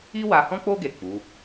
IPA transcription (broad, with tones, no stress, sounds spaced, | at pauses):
i˦ w a˧ h ɔ̃˦ k͡p o˦ ɡ e˦˨ k͡p u˨˦